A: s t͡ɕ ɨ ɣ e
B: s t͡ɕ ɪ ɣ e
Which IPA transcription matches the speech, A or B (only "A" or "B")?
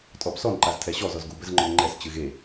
A